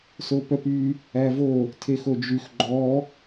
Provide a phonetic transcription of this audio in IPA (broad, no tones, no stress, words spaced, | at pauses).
sopœpy | ævo | tʰexod͡ʒyx ɡ͡ǃɔ